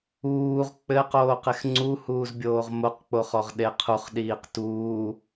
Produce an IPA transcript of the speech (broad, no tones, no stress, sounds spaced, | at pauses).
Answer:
uː ʁ k͡p ɘ q oː q e x ŋ͡ǀ u h uː z bʲ oː ʁ m o q k͡p o χ ɔ ʁ ɗ e qʰ u χ ɗ iː q t uː